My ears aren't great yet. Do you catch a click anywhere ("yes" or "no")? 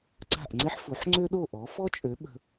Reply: yes